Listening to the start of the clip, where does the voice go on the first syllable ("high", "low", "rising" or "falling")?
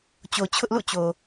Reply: low